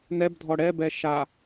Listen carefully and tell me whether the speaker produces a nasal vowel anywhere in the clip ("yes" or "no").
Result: no